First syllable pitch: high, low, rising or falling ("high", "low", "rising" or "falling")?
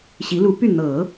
rising